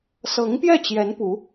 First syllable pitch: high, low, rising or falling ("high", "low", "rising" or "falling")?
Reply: rising